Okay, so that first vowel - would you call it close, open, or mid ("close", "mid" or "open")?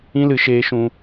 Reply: close